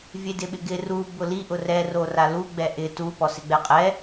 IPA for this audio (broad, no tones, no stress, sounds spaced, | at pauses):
vʲ e d ɪ ɓ ɪ ɡ ɪ r u b ʊ l i ʔ ʊ r ɛ r o r a l u ɡ͡b ɛ ʔ ɪ t u p ɔ s ɪ ɡ͡b ɛ qʼ ɛ